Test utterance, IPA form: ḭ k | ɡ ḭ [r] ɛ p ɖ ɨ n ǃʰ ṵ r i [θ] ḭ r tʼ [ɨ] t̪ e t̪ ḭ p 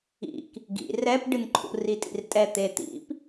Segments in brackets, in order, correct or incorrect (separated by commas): correct, incorrect, incorrect